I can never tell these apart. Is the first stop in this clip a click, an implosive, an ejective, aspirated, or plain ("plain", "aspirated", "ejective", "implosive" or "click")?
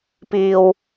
plain